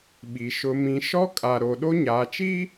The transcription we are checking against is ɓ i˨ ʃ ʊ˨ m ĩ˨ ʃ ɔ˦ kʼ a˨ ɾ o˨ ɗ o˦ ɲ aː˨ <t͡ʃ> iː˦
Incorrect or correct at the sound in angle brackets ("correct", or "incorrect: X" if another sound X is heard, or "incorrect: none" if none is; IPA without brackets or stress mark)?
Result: correct